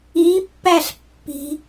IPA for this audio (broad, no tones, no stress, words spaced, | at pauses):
ipːæɬpːi̤